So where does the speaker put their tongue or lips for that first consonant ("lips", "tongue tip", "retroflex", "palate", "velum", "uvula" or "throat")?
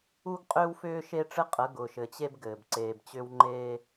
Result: velum